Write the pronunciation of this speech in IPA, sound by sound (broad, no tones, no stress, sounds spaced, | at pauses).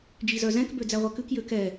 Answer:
d͡ʒ i z œ z ɛ̃ k b ø d͡z æ ʁʷ ɛ k ʉ k j ø k ɛ